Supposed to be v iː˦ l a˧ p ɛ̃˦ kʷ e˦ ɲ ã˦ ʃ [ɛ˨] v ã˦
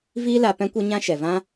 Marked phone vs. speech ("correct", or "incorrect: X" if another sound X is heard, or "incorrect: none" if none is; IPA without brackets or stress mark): correct